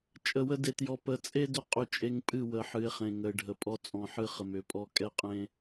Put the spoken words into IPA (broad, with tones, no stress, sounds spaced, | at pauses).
t͡ʃʼ ə˨ w ə˦ d e˨ t j ɔ˨ p ə˨ t͡sʼ e˦ d ʏ˦ qʼ ʏ˦˨ t͡ʃʼ e˦ ŋ pʼ ɨ˦˨ w ə˨ ħ ɨ˨˦ ɪ̯ χ ẽ˨ ŋ ə˨ ɪ̯ ɖʱ ə˨ pʼ ɔ˦ t͡sʼ ɔ̃˨ ħ ɨ˦ χ ə˨ m ʏ˨˦ pʼ ɔ˦ kʼ ɛ˦ qʼ ẽ˦